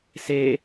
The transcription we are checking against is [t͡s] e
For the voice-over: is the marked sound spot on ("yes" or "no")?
no